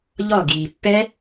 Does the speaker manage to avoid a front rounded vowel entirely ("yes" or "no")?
yes